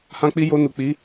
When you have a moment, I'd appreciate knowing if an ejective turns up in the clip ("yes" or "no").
no